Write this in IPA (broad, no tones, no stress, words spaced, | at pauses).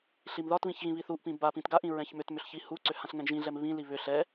ɬimðɒtβĩç ɣĩβiθuʔpĩ bapĩt ɡaʔĩ ɹɛ̃çmʏtmʏɬ çihuǀʏ hãɬŋɛ̃ɡʒĩɮɛm βĩli βʏ ɬɛ